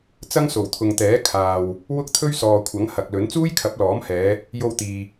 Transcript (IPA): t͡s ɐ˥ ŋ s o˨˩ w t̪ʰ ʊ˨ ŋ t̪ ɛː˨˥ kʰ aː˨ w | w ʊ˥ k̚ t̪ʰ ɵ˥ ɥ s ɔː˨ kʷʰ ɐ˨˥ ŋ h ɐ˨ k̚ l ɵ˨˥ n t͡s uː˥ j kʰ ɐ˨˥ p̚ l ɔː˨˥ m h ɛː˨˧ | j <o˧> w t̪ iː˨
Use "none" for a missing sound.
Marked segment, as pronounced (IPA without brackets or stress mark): o˧